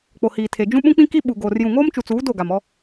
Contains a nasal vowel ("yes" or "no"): yes